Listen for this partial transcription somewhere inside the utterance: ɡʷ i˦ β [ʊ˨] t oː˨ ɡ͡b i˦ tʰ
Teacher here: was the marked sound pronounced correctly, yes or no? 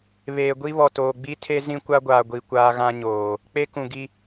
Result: no